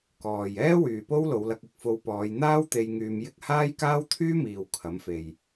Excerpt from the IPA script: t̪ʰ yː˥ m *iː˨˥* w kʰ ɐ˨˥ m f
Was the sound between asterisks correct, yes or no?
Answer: no